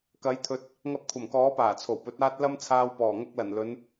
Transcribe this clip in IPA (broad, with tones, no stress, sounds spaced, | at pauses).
k ɐ˨˥ j t̪ʰ ɵ˨˥ t̚ | ŋ ɐ˧ p̚ kʷʰ ɐ˨˩ m k ɔː˨˥ p aː˨˩ t͡sʰ o˨˩ w p ɵ˨˥ t̚ aː˥ t̚ l ɐ˥ m t͡sʰ aː˧ w p ɔː˨˩ ŋ ɐ˥ k̚ l ɐ˨˩ n l ɵ˨˧ n